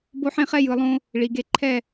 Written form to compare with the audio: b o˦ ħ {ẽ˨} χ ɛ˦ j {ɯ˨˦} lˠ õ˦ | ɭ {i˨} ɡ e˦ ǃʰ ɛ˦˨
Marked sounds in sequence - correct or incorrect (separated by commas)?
incorrect, incorrect, correct